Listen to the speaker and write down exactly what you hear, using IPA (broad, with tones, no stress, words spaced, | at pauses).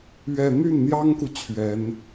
ɥɛ˥˧ n̪y˥˩nn̪jɑ˥ŋku˨ t͡ɕʰɥɛ˧˥n